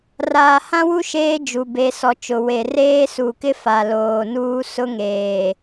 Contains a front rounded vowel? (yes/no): no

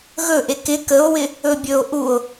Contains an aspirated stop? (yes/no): no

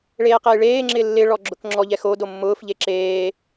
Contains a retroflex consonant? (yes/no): yes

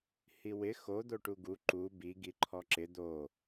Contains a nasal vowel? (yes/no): no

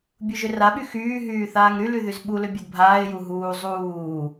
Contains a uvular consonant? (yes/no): no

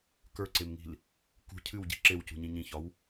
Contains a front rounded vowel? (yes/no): no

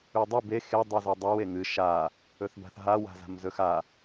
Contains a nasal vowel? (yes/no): no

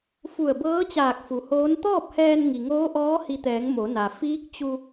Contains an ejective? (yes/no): no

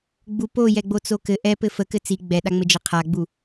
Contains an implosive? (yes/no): yes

